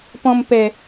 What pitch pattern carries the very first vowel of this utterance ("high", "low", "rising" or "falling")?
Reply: low